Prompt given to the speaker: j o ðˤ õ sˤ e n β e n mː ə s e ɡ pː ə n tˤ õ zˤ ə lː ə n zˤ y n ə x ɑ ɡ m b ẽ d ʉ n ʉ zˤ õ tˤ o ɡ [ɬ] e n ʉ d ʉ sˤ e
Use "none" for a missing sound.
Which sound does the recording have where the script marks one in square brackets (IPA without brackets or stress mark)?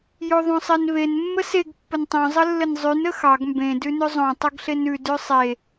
ɬ